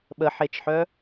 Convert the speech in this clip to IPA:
ɓ ə ħ e t͡ʃ ħ œ

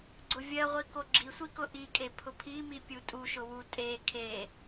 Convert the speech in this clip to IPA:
ɡ͡ǀ ʊ vʲ ɜ ʁʷ i k o ɡ͡ǁ i sʷ i k ʊ ʔ i kʼ e pʰ ʊ pʰ i m i pʲ u tʼ u ʃ ʊ w u tʼ e kʰ e

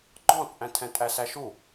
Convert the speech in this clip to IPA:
ɡ͡ǃ ɔ̃ t͡sʼ æ̃ tʰ ɛ̃ tʼ æ s æ ʃ u

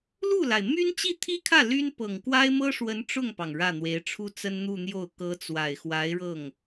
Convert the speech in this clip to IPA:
l u˥˩ l a˩ ɪ̯ m y˥ n t͡ɕ i˥˩ t̪ʰ i˥ kʰ ä˥˩ l y˥ n p ɤ˨˩ ŋ k w a˥ ɪ̯ m ɤ˥ ʂ w ə˧˥ n ʈ͡ʂ ʊ˥˩ ŋ p ɑ˩ ŋ ɻ ä˥˩ n̪ w e˧˥ ɪ̯ ʈ͡ʂʰ u˥ t͡s ə˥ n n̪ u˥˧ n̪ j o˥˩ ʊ̯ k ɤ˧˥ t͡s w a˨˩ ɪ̯ x w a˧˥ ɪ̯ ɻ ɤ˥˩ ŋ

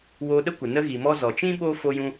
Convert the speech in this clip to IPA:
w oː˧ ɗ ə˦ kʷ ə˨ n ə˧ ɣ i˨ m ɔ˧ z ɔ˨ t͡ʃ ĩ˦ ɓ o˦ f o˦ j ũ˦

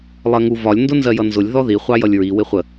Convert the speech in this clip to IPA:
lˠ ɜ ŋ u v ɒ lʲ n d ʊ n z ɜ j ʌ n z ʊ lʲ ð ɔ ð i χʷ ɑ j ʌ lʲ ɹ i w ɪ χʷ ə

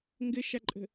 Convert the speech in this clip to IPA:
ŋ ɡ ɘ ʃ a ǃʼ ə̤

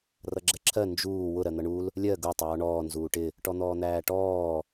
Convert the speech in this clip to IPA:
r ʌ ɡ͡ǁ ɛ ǁʰ ɜ n d͡ʒ uː w ʊ ɾ ɜ n̪ ʌ ɳ u l | lʲ ɜ ɡ u tˤ ə w ɒ ɳ ɔː n z uː ʈ ɪ | ʈ ɔ n̪ ɔː n̪ æː ʈ ɔː

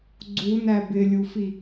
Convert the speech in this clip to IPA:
ɡ͡ǀ u n æ b ɪ lʲ u f i

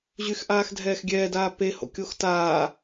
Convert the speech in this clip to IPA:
ʑ y x ʔ aː x dʱ ɛː x ɡʲ ɛː d aː p e h o̰ kʲ o x t aː

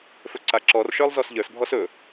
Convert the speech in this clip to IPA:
f ɵ ǀ a ǁ ɔ r ʃ ə˞ lˠ z ɔ s ʎ ə˞ s bʱ ɔ s ɵ

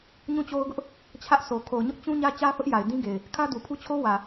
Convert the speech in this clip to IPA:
ɲ ũ˦˨ t͡ɕ o˦ ʊ̯ ɡ ʊ˦ ʔ | t͡ɕʰ ä˦ ʔ sʰ o˨ kʰ o˨ ʊ̯ ɲ ʊ˦ ʔ t͡ɕ ũ˦ ɲ ä˦ t͡ɕ ä˦ θ ʊ˦ ʔ j a˨ ɪ̯ d ĩ˦ ɡ e˨ ɪ̯ | kʰ ä˦ d u˨ pʰ u˦ t͡ɕʰ o˦ w ä˨

